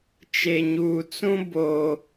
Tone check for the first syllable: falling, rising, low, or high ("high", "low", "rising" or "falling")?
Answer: low